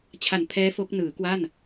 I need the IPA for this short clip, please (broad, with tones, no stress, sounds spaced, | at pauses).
t͡ɕʰ a˨˩ n pʰ ɛː˦˥ f o˦˥ k̚ n ɯː˩˦ k w a˥˩ n